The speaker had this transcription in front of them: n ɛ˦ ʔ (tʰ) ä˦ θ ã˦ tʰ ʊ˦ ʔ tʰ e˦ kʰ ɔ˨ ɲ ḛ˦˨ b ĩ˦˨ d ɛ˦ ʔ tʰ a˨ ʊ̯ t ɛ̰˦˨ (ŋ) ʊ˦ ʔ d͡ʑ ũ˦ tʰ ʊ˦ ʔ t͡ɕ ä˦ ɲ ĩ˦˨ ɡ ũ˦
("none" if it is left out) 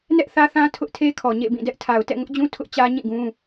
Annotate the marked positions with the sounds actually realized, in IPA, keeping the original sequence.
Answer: θ, ŋ

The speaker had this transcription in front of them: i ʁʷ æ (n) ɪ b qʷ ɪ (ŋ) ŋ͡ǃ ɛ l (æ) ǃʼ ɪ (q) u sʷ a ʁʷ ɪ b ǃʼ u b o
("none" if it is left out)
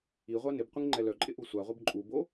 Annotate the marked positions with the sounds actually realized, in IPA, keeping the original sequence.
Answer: n, ŋ, œ, ʔ

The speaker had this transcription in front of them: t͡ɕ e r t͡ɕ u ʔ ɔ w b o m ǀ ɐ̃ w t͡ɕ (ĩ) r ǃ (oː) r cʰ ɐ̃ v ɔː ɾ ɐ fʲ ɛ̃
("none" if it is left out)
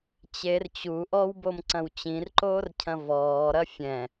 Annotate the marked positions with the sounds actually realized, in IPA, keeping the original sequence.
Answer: ĩ, oː

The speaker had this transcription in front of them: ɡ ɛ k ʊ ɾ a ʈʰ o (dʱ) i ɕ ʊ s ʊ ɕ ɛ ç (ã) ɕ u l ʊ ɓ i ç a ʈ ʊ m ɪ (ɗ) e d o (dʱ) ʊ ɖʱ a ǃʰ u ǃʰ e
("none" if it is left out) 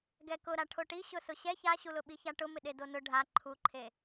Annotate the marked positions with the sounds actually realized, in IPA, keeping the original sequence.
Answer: ʈ, a, ɗ, n

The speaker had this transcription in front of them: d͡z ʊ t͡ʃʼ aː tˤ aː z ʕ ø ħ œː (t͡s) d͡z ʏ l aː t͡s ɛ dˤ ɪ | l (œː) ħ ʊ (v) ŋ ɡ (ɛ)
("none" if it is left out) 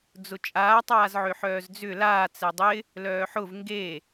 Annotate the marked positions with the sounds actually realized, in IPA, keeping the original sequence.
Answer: z, œː, v, e

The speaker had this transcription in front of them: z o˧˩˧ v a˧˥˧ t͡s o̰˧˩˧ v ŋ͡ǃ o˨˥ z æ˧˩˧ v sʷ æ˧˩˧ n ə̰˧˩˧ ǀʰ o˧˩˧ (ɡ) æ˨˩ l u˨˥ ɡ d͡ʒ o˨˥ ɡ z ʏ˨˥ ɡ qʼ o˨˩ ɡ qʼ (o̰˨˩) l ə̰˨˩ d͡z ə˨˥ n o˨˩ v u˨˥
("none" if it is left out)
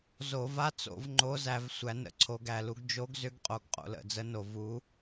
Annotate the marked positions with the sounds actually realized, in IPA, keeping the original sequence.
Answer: ɡ, o̰˨˩

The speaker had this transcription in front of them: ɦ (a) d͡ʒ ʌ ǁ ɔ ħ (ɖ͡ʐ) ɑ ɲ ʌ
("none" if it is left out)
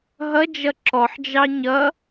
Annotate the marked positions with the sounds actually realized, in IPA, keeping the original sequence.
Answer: ʌ, d͡ʒ

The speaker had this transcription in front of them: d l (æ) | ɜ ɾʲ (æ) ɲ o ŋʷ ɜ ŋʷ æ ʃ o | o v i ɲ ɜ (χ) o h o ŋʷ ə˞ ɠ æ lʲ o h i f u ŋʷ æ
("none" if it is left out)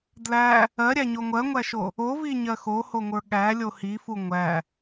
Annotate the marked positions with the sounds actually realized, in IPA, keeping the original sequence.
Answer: æ, æ, x

